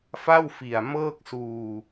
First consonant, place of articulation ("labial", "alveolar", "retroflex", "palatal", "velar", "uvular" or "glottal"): labial